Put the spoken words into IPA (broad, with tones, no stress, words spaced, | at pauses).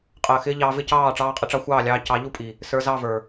qʼəː˨xɪː˦ʎɑː˧ vɪ˦cɑː˦˨ ʈ͡ʂɑː˧qʼɪ˧ʈ͡ʂɑ˧ xʷɑː˦˨lʲɑː˧ cɑ˨˦ʎu˦pʼi˨ | sə˞˧zɑ˦˨və˞˨